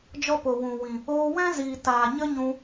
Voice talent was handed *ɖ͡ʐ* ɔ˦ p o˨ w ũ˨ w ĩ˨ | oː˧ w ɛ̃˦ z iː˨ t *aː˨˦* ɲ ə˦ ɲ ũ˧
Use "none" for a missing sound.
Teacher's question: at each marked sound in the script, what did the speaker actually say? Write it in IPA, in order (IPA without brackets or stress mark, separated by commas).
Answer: d͡ʒ, aː˨